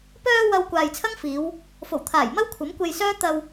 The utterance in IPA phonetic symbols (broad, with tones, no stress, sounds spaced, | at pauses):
p œː˧ w ɐ˧ w kʷ aː˨ j t͡sʰ ɐ˥ ŋ f iː˨˧ w | f o˨˩ w t̪ʰ aː˨˩ j m ɐ˥ w kʷʰ ɐ˨˥ m kʷ e˧ j s œː˥ t̪ ɐ˧ w